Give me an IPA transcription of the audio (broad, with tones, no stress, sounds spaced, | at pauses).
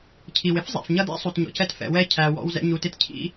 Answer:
cʰ i˩ w ɪ˥ f zˤ æ̰˩ f ɲ ʌ˧ d æ̰˥ sˤ u˩ t ɲ ɔ̰˩ c ɛ˧ t f ɛ̰˩ w ɛ˥ cʰ æ˩ w ɔ̰˧ w z ɛ̰˧ ɲ u˩ t ɪ˧ t cʰ ḭ˥